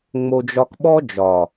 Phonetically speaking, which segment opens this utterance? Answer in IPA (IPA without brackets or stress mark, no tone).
ŋ͡m